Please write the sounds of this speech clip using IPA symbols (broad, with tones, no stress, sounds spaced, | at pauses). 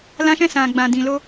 l ã˧ ʃ ɛ̃˧ s ã˨ ɡ͡b ã˨ d ĩ˨ l o˧